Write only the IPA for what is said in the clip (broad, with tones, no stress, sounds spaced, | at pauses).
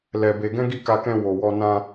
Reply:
l ɛ˧ b e˧ ɡ ɛ̃˦ ɡ i˦˨ k a˧ k ɛ̃˧ w o˨ w ɔ˧ n ã˧